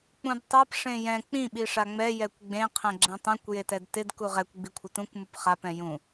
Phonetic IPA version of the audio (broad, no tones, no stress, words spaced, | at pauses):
k͡pũdtˤap ʂẽjɛ̃ k͡pĩ ɓiʂaŋ͡mɛ jɛkʷɡ͡bẽ qʰɛ̃ɡ͡ǁɛ̃tˤɛ̃kʷ jetɛdtɪd kuʁɛkʷ ɡ͡bikʷʰɪtũkʷ mupχap ɛ̃jũ